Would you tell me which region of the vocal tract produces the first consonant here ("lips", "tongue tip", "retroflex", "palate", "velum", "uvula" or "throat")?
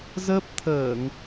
tongue tip